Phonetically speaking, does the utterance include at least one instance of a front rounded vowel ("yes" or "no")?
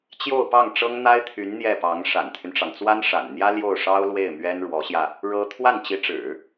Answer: yes